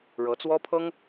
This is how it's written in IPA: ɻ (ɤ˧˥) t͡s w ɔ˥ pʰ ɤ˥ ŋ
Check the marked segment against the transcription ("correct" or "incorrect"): correct